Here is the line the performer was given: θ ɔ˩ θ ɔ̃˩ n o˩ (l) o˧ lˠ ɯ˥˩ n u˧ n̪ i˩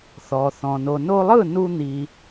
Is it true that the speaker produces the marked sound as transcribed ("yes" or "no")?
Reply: no